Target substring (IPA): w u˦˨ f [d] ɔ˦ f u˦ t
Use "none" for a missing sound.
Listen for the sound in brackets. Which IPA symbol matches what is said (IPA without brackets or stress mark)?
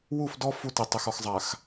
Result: d